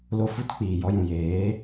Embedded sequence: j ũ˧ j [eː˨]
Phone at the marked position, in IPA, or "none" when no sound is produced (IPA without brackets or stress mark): eː˨˦